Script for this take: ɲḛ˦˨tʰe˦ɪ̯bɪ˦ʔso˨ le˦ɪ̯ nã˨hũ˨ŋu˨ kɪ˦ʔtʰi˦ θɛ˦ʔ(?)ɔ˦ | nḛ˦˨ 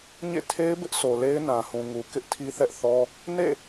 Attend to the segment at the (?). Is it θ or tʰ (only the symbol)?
θ